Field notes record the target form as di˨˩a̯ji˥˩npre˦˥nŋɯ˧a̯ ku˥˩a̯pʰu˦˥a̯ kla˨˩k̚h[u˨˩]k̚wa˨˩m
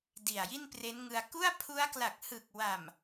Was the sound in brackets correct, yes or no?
no